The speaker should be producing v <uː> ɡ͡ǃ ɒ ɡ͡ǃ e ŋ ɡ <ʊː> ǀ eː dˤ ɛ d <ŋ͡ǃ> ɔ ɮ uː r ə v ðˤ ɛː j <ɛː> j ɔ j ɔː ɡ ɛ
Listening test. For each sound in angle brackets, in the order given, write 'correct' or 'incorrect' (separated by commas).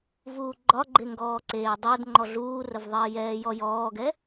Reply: correct, incorrect, correct, correct